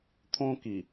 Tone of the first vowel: high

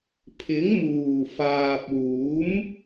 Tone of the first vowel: rising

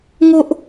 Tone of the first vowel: high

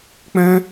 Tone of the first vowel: high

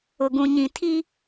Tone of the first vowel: low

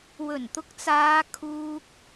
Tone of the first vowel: low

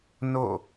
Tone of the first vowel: falling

